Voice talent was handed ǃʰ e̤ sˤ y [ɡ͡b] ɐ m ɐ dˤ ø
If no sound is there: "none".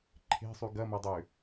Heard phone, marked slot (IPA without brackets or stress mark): ɡ